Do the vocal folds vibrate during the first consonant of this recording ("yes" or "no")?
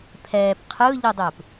no